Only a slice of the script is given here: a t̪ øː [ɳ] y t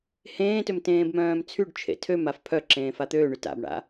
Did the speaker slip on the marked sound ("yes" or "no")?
no